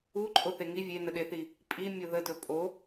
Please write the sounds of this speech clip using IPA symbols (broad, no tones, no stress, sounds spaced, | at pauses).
u ǃʼ o θ e ŋ i vʲ e n ə ɗ e θ i | pʼ i mʲ o ð ə d ɵ pʼ o